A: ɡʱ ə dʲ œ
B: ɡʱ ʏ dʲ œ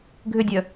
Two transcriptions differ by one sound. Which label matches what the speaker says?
B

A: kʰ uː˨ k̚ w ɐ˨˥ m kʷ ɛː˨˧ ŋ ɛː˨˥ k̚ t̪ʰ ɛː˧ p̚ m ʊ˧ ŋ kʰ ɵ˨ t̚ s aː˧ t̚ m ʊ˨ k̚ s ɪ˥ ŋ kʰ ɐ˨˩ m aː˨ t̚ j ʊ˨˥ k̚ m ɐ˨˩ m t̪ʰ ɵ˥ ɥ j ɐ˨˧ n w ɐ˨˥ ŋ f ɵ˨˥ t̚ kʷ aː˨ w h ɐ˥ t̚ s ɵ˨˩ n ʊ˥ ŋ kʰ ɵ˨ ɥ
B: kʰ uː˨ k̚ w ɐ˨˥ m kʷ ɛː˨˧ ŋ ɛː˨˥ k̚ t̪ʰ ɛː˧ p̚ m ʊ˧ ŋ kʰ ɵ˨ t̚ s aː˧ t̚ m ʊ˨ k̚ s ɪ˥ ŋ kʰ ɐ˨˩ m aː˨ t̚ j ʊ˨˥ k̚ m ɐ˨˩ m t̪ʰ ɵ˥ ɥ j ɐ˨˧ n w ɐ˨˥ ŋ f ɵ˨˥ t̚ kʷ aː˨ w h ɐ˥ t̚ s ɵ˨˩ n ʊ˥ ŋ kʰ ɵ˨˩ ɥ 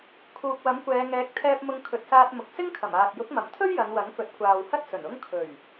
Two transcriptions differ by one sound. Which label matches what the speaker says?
B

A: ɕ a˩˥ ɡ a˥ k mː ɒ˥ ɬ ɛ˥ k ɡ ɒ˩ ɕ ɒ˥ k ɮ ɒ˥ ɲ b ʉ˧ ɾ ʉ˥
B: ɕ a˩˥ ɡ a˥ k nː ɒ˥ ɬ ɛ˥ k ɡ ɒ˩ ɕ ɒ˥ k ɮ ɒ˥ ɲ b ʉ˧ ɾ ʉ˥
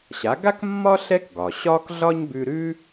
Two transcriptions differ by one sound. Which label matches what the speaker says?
A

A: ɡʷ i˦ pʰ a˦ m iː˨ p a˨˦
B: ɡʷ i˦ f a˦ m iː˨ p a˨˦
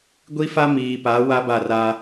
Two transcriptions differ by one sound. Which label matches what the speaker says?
B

